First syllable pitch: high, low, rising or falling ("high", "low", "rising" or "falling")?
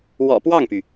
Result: low